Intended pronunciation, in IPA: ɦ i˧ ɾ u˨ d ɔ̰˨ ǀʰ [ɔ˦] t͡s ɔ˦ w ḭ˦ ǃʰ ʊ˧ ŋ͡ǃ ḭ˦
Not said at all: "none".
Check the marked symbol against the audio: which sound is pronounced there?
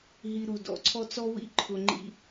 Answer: ɔ˦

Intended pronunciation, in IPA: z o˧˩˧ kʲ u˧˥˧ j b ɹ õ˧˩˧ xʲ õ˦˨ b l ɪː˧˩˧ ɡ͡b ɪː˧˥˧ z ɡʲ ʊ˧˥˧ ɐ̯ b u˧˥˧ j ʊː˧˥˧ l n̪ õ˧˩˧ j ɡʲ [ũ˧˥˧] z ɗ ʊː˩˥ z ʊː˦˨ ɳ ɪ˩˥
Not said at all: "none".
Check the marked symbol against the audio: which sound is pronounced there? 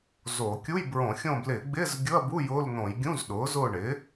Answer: ũ˧˥˧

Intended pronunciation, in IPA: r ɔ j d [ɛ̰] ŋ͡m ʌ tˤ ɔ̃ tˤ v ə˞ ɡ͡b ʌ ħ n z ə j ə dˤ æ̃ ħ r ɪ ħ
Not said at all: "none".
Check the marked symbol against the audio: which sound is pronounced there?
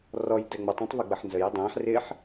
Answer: ɛ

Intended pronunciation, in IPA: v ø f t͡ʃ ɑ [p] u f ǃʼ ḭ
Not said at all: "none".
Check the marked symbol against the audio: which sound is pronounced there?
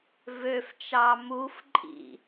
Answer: m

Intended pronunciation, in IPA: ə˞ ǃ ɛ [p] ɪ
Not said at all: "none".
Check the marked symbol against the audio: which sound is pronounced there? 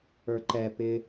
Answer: p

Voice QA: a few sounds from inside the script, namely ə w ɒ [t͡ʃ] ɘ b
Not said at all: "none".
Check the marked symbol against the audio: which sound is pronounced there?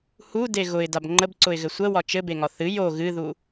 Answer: t͡ʃ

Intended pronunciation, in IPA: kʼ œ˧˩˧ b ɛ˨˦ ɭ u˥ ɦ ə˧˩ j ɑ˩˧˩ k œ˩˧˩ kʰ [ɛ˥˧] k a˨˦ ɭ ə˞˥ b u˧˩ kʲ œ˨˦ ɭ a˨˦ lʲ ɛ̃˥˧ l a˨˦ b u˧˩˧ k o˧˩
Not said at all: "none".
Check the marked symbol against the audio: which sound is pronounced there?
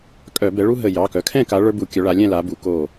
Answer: ɛ̃˥˧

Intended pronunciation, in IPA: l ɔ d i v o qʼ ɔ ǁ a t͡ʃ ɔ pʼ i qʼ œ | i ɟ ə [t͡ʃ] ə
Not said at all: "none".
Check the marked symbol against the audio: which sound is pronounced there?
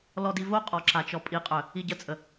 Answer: t͡sʼ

